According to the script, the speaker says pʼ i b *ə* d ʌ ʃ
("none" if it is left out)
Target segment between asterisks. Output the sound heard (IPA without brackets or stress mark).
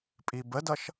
ə